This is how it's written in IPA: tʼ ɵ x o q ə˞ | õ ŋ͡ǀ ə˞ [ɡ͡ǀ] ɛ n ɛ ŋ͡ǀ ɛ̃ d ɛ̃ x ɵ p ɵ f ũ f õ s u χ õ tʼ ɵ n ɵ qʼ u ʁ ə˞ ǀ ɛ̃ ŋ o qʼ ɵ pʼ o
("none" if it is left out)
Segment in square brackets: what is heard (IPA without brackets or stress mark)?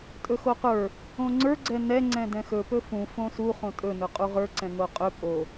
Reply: ɡ͡ǀ